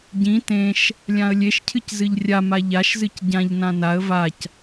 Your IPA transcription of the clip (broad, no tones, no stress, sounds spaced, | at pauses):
ɟ ĩ t ẽ ʃ | lʲ ã ə̯ lʲ e ʃ cʰ ɨ c z ɨ ʎ rʲ a m a ʎ a ʃ z ɨ c ɟ ã ʎ n ã n a ə̯ v a c